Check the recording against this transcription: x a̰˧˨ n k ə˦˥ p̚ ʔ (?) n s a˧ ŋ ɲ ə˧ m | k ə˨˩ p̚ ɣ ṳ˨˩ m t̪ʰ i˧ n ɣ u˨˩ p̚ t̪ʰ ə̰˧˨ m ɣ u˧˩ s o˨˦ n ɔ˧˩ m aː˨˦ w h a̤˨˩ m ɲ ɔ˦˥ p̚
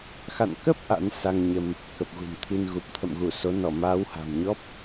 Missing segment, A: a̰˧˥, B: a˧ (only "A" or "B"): A